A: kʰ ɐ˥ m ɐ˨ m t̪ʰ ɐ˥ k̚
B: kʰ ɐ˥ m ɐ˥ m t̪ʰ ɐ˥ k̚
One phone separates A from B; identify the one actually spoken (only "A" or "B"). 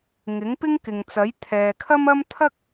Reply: B